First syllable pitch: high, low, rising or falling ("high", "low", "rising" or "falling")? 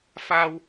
high